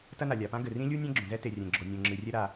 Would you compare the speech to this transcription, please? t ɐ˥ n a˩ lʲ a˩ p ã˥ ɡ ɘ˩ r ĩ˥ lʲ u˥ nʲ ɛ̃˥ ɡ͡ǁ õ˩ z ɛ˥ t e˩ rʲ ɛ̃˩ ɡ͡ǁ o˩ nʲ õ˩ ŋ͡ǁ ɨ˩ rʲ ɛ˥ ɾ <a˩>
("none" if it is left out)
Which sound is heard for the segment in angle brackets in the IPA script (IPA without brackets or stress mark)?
a˩